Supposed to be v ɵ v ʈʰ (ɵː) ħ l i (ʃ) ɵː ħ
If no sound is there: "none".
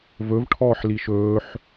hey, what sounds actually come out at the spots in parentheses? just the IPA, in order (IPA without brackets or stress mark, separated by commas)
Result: ɔː, ʃ